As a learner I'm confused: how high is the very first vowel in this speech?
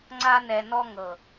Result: low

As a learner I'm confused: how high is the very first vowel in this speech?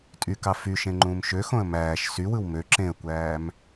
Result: high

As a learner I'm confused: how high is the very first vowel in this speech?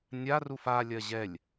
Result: low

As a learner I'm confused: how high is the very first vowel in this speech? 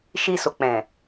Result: high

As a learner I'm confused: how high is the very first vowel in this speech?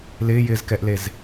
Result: high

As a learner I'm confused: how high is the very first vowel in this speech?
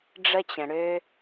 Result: mid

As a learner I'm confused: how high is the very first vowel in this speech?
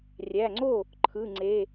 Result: low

